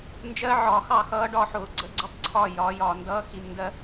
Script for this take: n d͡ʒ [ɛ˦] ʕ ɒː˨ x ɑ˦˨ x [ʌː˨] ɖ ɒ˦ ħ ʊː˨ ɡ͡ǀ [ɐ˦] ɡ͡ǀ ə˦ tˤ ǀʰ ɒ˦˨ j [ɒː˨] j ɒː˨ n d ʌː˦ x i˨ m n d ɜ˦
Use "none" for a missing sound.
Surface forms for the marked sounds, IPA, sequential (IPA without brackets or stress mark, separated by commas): ɜ˦, ʌː˦, ə˦, ɒː˨˦